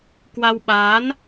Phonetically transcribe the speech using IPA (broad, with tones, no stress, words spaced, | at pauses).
kwa˧wɓaː˨˦n